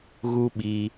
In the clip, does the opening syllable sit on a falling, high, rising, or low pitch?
high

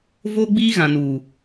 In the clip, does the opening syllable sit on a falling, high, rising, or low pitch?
high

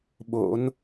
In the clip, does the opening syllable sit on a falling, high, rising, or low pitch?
rising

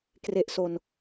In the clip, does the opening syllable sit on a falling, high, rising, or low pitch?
low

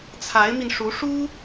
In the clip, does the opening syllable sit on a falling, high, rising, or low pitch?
rising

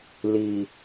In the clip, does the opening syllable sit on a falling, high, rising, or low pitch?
low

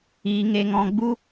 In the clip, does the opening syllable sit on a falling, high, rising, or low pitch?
high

